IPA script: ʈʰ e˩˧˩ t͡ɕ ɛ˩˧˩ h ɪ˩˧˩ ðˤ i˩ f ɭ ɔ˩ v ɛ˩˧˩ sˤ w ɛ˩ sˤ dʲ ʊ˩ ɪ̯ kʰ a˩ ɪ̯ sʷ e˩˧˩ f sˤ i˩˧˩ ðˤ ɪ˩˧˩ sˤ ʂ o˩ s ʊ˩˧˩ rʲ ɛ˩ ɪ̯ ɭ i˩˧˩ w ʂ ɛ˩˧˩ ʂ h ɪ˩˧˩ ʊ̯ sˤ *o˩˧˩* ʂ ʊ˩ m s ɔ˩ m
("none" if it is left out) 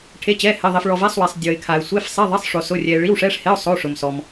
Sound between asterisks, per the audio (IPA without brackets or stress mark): o˩˧˩